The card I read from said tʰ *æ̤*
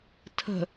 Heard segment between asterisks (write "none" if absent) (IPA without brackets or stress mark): ə̤